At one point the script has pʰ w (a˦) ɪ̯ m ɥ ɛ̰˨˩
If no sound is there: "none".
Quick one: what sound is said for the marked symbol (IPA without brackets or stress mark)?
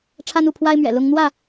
a˦